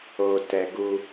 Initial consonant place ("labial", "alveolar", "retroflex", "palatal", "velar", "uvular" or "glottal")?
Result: alveolar